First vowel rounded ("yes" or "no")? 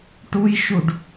yes